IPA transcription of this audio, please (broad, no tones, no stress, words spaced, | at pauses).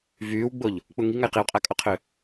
vyːwɡ͡boʎ | k͡puŋiŋaj qiwqʼakʼoqʰø